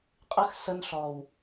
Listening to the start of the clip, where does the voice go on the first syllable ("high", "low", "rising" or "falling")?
high